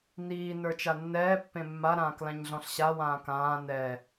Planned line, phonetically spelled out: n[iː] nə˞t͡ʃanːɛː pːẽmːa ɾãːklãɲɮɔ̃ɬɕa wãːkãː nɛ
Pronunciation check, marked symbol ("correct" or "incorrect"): correct